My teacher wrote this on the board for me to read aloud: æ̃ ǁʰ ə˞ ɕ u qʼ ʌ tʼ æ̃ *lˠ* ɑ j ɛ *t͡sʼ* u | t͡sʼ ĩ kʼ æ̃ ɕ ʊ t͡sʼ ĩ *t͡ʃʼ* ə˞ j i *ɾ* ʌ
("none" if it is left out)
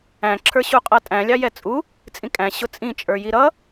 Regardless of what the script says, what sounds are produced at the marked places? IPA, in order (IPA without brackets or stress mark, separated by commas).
lʲ, t͡sʼ, t͡ʃʼ, ɾ